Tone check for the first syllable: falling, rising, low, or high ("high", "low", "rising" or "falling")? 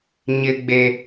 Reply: high